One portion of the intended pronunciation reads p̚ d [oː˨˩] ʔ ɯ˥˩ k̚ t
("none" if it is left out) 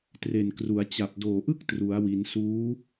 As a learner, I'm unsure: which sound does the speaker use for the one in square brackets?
oː˨˩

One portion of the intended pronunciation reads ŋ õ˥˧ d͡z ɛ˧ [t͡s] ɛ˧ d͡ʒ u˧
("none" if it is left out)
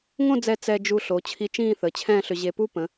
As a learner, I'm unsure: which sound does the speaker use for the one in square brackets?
t͡s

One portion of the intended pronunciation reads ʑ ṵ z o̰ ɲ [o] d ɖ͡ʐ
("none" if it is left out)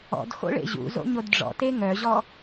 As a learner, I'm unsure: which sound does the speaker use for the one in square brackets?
o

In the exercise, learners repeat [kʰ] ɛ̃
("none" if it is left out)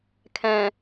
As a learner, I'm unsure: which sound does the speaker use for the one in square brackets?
kʰ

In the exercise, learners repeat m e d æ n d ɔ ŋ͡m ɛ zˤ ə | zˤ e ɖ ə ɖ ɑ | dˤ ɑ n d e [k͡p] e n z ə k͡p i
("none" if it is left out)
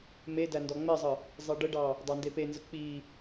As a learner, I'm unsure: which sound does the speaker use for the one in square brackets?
p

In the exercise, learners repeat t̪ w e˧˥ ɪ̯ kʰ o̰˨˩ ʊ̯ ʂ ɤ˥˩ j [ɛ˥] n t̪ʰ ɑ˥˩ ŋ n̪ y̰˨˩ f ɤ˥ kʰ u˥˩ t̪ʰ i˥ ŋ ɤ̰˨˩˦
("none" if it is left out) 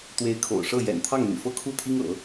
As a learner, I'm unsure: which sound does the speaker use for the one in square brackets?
ɛ̰˨˩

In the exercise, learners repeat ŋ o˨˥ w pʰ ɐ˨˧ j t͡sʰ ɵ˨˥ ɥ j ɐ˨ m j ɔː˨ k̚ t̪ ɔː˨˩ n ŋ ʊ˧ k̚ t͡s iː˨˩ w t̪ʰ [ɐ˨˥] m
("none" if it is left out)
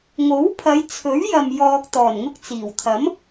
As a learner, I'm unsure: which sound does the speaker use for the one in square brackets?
ɐ˨˥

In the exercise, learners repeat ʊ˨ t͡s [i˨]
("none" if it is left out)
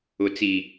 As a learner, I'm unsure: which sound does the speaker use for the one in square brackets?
i˨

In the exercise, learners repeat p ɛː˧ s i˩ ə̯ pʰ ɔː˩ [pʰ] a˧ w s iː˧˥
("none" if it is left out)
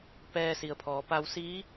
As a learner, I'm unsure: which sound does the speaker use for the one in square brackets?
p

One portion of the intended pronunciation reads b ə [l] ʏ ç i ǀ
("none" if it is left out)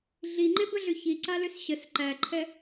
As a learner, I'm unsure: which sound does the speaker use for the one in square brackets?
ɮ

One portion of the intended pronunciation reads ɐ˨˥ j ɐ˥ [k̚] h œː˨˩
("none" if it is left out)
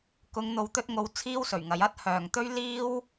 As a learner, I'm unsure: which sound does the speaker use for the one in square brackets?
t̚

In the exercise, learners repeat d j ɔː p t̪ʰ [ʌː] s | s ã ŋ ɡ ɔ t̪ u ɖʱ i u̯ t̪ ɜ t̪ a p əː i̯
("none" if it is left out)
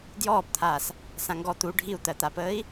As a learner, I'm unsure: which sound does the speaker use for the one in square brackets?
aː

